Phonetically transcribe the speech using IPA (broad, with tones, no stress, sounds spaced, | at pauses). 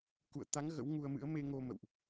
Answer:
k ṵ˧˨ ə̯ t̪ a˨˦ ŋ ɣ ə̰˧˥ w ŋ u˧ ə̯ m ɨ̰˧˥ ə̯ m e˧ ŋ o˧ m ə̰˧˨ w ʔ